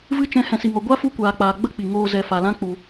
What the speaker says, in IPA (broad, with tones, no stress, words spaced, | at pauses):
vɨ˧t͡ʃɛ̃˨˦ hɛ̃˨si˨ŋɔ˨ ɡʷa˦fu˧kʷaː˨k͡paː˨ ɡ͡bə˦k͡pi˨ŋoː˧ zɛ˨fa˨lã˦ k͡pu˧